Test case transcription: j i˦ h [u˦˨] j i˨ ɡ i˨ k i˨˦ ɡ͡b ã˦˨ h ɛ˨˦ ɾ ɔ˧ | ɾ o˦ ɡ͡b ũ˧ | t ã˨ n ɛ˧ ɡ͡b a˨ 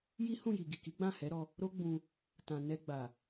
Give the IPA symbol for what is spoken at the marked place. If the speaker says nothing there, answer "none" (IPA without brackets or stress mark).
ũ˦˨